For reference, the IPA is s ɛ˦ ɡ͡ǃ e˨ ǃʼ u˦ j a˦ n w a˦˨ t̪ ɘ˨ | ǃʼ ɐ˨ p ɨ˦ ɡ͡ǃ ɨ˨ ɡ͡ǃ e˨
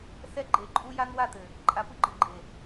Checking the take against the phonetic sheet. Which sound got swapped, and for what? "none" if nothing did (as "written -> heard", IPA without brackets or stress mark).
ɐ˨ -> a˨